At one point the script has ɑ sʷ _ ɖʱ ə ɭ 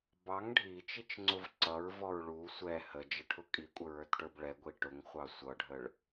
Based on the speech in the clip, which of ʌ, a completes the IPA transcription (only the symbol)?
ʌ